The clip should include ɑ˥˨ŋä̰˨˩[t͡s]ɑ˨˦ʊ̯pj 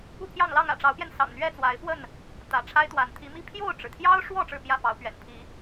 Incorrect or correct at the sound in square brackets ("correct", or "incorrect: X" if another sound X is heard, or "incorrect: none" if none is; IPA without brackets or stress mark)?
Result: incorrect: ʈ͡ʂ